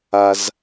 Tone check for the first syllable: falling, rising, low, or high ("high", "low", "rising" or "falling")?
low